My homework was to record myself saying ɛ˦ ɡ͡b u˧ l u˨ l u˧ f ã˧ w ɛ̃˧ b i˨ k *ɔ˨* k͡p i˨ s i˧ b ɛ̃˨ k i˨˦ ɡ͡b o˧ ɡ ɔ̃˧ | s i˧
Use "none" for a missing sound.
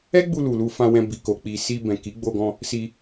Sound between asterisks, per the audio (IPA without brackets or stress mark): o˨